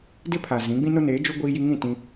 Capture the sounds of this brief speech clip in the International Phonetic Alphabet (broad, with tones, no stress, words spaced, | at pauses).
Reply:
dɪ˦ pʰa˨zĩ˨˦ ɡ͡bĩ˦no˦neː˨˦ d͡ʒu˦ ɡʷiː˦ji˦ ŋĩ˦˨ tĩ˦